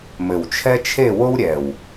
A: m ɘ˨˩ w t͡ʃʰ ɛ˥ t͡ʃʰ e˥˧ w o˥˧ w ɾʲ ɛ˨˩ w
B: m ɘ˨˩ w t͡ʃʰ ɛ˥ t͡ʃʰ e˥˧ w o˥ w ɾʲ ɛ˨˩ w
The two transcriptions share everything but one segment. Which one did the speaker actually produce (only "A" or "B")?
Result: B